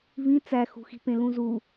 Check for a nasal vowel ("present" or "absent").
present